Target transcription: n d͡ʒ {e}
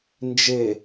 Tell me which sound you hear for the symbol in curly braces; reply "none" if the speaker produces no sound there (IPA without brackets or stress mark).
e